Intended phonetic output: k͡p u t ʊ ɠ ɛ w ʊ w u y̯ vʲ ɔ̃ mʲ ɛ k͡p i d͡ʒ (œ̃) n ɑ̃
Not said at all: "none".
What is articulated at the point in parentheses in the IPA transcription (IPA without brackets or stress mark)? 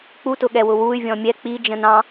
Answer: ə̃